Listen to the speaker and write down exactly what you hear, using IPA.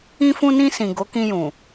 ĩ˧ f ũ˧ n ĩ˧ s ĩ˨ ɡ o˨˦ k ĩ˧ j ũ˨

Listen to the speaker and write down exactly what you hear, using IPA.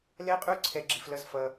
l ɛ˦ qʼ u˦ ǀʰ ɛ˧ ɡ͡ǁ i˧ f l ʌ˦ z f ʌ˧

